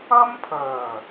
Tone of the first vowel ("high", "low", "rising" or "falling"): high